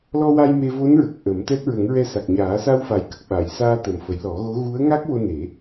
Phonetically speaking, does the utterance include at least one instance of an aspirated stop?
no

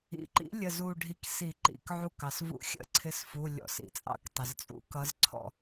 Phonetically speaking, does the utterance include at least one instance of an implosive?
no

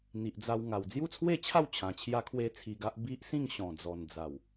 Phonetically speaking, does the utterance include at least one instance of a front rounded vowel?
no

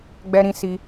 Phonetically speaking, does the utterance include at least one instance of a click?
no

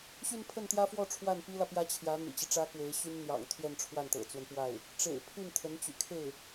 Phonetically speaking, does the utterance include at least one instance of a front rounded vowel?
yes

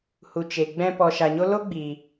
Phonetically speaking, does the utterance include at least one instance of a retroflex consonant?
no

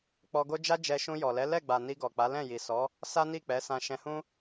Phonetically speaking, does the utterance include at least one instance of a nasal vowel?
yes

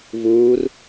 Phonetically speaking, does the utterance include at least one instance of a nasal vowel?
no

